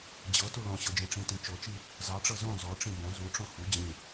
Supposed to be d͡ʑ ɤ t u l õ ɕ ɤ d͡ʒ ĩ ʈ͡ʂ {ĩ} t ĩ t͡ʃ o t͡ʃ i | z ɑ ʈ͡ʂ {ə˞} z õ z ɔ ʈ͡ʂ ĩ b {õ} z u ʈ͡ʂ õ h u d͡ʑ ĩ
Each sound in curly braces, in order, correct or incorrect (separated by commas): correct, incorrect, correct